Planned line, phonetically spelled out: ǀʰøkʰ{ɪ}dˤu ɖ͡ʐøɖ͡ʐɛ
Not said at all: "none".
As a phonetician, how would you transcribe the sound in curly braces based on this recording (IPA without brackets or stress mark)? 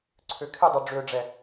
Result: ɪ